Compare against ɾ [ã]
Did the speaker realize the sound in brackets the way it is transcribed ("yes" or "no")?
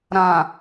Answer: yes